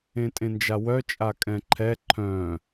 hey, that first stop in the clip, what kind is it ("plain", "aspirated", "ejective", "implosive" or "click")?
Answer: ejective